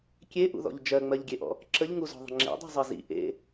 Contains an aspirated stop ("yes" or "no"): no